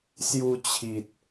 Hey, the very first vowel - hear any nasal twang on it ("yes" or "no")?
no